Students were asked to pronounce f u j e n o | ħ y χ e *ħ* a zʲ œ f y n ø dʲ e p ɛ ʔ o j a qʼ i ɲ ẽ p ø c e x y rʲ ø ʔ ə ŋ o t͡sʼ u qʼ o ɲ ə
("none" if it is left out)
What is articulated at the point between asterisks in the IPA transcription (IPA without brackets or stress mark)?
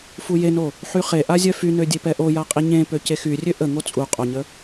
ʔ